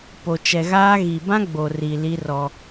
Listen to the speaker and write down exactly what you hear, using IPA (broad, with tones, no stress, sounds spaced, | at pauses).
p o˨ t͡ʃ ɛ˨ ɣ aː˦ ɣ i˨ b ã˦ ɡ͡b o˨ r i˨ l i˦ r ɔ˦